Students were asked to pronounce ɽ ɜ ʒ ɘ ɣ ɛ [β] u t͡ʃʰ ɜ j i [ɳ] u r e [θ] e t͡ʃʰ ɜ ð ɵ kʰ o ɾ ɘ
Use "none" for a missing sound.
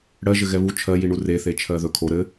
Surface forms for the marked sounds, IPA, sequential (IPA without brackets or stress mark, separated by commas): β, ɳ, θ